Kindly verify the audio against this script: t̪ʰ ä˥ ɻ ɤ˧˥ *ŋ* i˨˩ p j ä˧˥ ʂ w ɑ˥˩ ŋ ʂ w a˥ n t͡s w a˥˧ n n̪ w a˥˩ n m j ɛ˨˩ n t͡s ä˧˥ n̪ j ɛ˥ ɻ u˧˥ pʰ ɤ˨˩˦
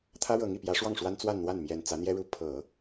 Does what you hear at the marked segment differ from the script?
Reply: no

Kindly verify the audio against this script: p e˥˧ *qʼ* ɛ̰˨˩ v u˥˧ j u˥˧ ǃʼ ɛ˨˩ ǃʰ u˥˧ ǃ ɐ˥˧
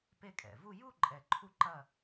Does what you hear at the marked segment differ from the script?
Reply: yes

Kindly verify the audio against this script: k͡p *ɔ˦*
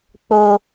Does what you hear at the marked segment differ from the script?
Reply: yes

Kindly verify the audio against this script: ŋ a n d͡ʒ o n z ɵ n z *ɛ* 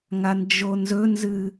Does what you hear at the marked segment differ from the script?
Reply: yes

